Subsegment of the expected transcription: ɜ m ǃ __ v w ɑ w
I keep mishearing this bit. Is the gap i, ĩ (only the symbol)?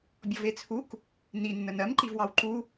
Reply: i